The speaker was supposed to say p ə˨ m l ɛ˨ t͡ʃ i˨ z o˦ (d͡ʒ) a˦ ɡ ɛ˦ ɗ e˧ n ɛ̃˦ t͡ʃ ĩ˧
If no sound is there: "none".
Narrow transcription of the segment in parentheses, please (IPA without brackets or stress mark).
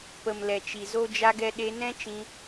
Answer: d͡ʒ